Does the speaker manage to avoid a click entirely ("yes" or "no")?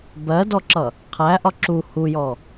no